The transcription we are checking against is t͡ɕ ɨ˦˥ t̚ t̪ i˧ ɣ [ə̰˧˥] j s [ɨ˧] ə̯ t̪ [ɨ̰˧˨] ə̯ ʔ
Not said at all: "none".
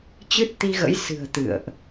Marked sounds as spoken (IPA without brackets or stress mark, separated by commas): ə̰˧˥, ɨ̤˨˩, ɨ̰˧˨